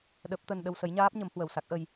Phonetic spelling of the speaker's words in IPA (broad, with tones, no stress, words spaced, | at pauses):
ɗə˦˥p̚ t̪ə˧nɗə˧wsə˨˦jɲaː˦˥p̚ ɲə˨˦mhwə˨˩wsa˦˥k̚ʔə˧j